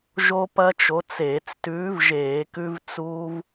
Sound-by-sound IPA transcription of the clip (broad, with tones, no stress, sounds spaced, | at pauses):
ʒ o˦ p ɐ˦ t͡ʃ o˨˥ t͡s eː˧˩˧ t͡s t ʉː˨˥ v ʒ eː˧˩˧ k ʉ˦ v t͡s uː˦ v